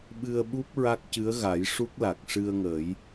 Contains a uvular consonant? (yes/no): no